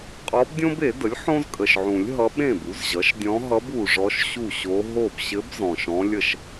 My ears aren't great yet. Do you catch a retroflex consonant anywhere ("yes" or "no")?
yes